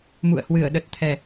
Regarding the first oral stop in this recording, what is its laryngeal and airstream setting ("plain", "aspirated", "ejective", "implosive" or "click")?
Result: implosive